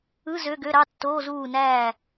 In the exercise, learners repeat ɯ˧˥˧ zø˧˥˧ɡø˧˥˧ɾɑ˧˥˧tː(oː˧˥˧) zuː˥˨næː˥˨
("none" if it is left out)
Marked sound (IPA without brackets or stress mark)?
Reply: oː˧˥˧